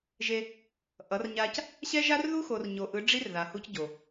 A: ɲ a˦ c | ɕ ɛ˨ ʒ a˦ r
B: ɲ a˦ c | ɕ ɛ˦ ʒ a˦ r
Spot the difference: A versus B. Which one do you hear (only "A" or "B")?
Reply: B